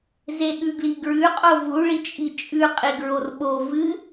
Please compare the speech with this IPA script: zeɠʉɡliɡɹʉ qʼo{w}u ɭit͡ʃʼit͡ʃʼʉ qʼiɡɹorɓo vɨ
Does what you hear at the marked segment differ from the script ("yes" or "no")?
yes